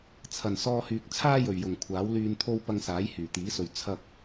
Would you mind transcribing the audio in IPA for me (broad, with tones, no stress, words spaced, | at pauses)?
t͡sʰɐ˨˩nsɔː˧hyː˨k̚ t͡sʰaː˥jɵ˨˩ɥjʊ˨˩ŋ kʷʰaː˨˥wlyː˧nt̪ʰo˥w pɐ˧ŋsaː˨˥j hyː˨˩t̪iː˨˥sɵ˨ɥ t͡sʰɐ˧k̚